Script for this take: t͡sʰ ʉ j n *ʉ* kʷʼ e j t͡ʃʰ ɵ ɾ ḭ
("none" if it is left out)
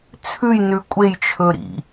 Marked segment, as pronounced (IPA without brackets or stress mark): ʉ